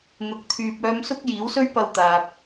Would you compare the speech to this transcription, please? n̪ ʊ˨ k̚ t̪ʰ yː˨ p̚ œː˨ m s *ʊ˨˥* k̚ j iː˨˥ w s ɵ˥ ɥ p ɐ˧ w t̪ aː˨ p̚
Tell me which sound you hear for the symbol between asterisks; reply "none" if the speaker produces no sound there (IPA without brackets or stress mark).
ʊ˧